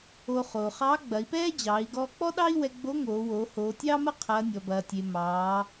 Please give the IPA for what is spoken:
o˧ χ oː˩ χ ɑː˧˥ ɡ͡b ɐ˩˧ i̯ p ɛː˥ d͡ʑ ɑː˩˧ i̯ ɡ ɔː˧ k͡p ɔ˥ ɗ ɑ˥ i̯ w ɛ˧ ɡ͡b o˧˥ ŋ oː˩˧ w oː˩˧ h oː˩˧ tʲ ɑː˥ m ɐ˥ qʰ ɐː˩˧ nʲ ɔ˩ b ɐː˩ tʲ e˩ m ɑː˩˧

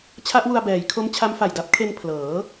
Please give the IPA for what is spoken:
t͡ɕʰ a˦˥ ʔ w u˧ a̯ b ɛː˩˦ j kʰ o˦˥ m t͡ɕʰ a˦˥ m f a˨˩ j d a˦˥ p̚ kʰ e˧ n pʰ l ɤː˩˦

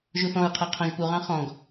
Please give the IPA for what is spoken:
ʒ u θ ɔ̃ ɹ qʰ æ qʰ ɔ̃ ʒ p u ʁ ɑ̃ χ ɔ̃ ɡ

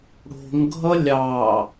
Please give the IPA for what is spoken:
ɽ o̤ ŋ ɡʱ ʌ lʲ ɑ

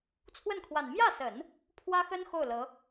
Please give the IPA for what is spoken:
t͡sʰ w ə˥˩ n kʰ w a˨˩ n m j ä˥˩ s ə˨˩˦ n | pʰ w ä˥ x ə˥ n x o˥˩ ʊ̯ l ɤ˧˥

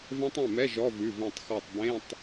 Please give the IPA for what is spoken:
v ɛ̃˦˥ tˤ ẽ˩˧˩ m ɛ˧˥˧ ʒ ɔ˧˥˧ v ʉ˩˧˩ v ɛ̃˧˩ tˤ x ɔ˧˩ tˤ b ẽ˧˥˧ tˤ

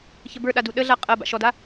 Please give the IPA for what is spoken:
ç ə b ə˞ ɗ a d u ɗ ə ɮ a qʼ ɐ b a̰ ʃ ɔ d a

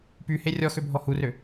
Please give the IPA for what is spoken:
p y h e rʲ ɔ x ø bʱ ɔ h u r ø

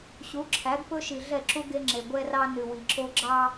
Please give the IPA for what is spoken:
ɕ u˨˦ ǁʰ æ˨˦ ɡ p ɵ˦ ʃ i˨ ɮ ɛ˦˨ ǁ u˦ ɡ e˦ ŋ͡ǁ e˨ ɡʷ ɛ˦ r ɑ˦ n ʉ˨ w i˨ ǁ o˦ ɡ͡ǁ ɑ˦

